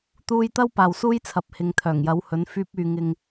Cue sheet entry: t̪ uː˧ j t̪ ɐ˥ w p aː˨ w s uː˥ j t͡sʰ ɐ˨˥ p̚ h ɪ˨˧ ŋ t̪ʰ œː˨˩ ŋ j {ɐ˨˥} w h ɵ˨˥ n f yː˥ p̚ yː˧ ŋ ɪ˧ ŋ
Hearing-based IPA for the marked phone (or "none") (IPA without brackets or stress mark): ɐ˨˥